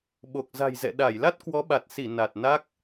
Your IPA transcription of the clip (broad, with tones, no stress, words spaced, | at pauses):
ɓo˨˩k̚za̤˨˩jzɛ̰˧˨ ɗa˧˩j la˦˥t̚kwɔ˨˦ɓa˨˩t̚si˧˩ na˨˩t̚na˦˥k̚